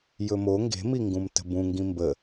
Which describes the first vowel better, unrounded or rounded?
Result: rounded